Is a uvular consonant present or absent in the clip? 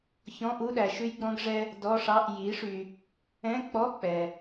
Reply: absent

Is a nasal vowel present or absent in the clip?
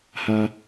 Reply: absent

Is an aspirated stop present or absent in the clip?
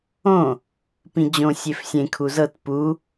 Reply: present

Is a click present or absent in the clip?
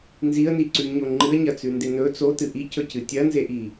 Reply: present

